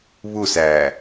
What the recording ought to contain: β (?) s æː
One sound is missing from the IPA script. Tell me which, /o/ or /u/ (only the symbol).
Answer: u